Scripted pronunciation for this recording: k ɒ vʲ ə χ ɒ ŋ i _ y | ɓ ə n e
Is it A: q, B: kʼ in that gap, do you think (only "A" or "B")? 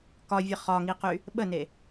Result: A